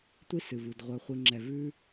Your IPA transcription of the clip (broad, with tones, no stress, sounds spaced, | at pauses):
tʷ i˦ s ɨ˨ v u˨ d ʁʷ œ˨ χʷ i˨ ŋ͡ǁ ɛ˨ v ʉ˦